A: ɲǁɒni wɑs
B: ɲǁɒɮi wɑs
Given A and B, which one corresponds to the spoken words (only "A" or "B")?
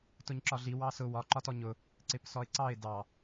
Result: B